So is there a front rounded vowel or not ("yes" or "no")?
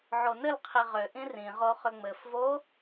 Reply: yes